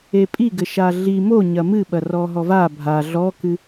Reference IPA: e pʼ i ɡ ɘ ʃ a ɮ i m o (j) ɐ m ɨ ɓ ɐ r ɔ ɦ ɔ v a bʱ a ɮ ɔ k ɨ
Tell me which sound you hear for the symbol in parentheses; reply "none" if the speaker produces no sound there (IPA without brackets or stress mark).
ɲ